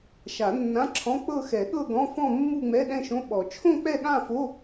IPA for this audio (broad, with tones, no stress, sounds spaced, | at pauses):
ʃ a˨˩˦ nː ã˧˥˧ ǁʰ ɔ̃˧˥˧ k͡p ɤ˥˧ x ɛ˨˩˦ ɠ ɤ˥˧ ɡ ɔ̃˧˥˧ f ɔ̃˥˧ mː u˥˧ ŋ͡m ɛ˧˥˧ ɗ ɛ̃˥˧ ʃ õ˧˥˧ ɓ ɔ˨˩˦ t͡ʃʰ õ˥˧ k͡p ɛ˥˧ ɠ ã˥˧ f o˧˥˧